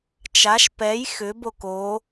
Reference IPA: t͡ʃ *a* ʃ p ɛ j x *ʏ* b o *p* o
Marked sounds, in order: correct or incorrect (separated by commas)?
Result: correct, correct, incorrect